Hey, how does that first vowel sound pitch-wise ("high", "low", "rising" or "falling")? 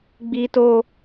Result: high